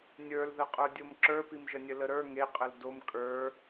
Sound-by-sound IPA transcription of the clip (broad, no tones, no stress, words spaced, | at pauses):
nʲə˞lðəqʼə˞dʲom ǁə˞pimʒənʲə ləɾə˞ ŋeqʼəl dom kʼə˞